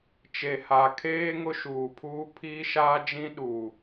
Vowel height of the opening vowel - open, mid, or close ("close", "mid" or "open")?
mid